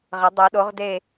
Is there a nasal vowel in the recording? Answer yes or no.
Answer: no